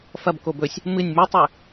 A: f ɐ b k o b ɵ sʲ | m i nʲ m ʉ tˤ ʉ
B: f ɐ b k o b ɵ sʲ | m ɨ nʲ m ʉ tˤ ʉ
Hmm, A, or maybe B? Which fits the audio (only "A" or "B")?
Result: B